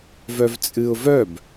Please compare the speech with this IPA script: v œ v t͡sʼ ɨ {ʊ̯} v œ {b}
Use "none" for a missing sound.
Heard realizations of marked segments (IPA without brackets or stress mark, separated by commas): ʊ̯, b